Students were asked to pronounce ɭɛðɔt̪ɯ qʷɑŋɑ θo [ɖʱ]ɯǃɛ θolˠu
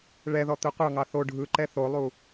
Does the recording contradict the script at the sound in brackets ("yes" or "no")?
no